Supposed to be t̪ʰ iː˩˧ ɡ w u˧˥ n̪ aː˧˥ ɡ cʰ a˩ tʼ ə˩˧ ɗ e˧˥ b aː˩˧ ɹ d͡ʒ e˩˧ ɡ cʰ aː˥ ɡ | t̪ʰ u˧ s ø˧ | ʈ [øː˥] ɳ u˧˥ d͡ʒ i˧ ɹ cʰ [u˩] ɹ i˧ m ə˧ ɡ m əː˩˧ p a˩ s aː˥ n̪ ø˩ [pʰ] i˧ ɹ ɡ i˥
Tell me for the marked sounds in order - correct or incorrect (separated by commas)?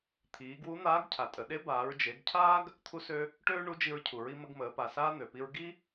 correct, correct, incorrect